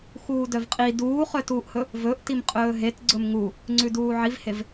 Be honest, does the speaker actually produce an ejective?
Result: yes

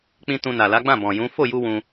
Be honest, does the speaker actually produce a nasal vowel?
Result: yes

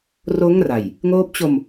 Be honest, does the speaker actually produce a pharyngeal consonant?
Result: no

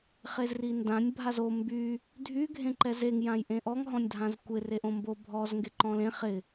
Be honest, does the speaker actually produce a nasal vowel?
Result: yes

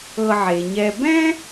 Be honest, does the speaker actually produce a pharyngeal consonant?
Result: yes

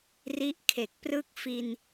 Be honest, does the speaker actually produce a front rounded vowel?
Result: no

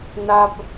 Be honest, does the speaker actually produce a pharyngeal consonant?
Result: no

